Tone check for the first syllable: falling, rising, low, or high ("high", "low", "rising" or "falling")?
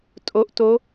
rising